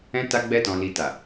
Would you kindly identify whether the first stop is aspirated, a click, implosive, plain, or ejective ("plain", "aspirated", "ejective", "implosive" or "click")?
plain